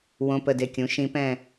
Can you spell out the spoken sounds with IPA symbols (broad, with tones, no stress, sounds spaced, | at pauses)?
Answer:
w õ˧˥˧ p ə˦˨ d e˦˨ kʲ ũ˩˥ ʃ ĩ˧˥ p ɛ̃˦˨